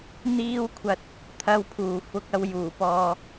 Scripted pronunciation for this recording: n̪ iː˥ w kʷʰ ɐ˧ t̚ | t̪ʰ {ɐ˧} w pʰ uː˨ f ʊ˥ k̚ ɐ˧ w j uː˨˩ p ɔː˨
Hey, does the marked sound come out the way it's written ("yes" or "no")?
no